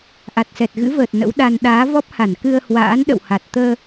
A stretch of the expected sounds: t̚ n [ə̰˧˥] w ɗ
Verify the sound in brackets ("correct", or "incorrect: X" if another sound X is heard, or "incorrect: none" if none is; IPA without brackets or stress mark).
correct